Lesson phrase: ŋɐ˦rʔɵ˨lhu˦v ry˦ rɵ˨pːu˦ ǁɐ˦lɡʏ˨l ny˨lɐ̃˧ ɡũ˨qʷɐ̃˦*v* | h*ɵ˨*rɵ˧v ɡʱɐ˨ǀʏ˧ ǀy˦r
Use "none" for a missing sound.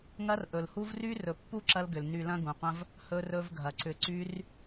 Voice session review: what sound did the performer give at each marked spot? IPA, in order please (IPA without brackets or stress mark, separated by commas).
v, ɵ˧